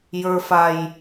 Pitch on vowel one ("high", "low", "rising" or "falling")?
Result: high